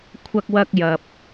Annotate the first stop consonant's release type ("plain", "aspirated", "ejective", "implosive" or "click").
aspirated